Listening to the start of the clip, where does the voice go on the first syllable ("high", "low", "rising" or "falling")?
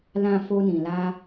low